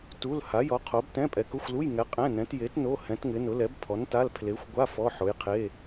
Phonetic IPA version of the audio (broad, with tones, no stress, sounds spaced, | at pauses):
t u˧˥˧ l h a˨˥ j ɔ˨˥ qʰ o˨˥ b t ɛ̃˧˥˧ pʼ ɛ˨˥ k ʊ˧˥˧ xʷ l u˧˥˧ j ŋ ɛ˨˥ qʼ ɛ̃˧˥˧ n ɛ̃˨˥ t j e˨˥ t n o˧˥˧ h ɛ̃˨˥ t ŋ ɪ˨˥ n ʊ˨˥ l ɛ˨˥ b pʰ ɔ˨˥ n t a˧˥˧ l pʰ l e˨˥ xʷ ɡʷ a˧˥˧ f ɔ˧˥˧ ħ ʊ˨˥ j qʰ e˧˥˧